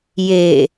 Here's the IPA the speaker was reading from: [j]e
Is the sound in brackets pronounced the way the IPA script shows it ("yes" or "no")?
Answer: yes